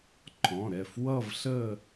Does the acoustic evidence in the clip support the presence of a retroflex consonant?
no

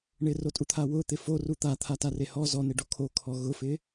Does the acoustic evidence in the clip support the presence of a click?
no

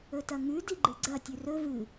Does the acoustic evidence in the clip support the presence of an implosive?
no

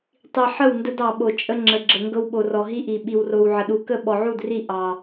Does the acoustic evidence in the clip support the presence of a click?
yes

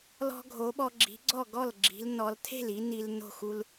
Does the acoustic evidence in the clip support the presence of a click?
yes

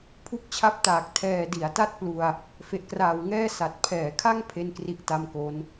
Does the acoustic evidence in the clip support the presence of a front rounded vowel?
no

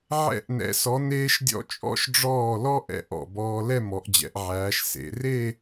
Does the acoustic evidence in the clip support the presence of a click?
no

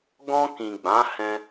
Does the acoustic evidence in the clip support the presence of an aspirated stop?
no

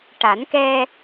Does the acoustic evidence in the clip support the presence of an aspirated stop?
no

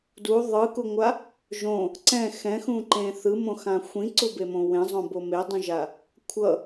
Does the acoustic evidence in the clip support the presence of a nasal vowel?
yes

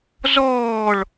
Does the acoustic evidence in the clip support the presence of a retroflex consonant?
yes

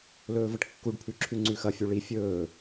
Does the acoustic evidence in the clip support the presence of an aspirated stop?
yes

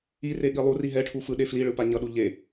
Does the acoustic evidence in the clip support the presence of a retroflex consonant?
yes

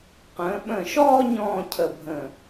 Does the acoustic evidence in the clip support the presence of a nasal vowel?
yes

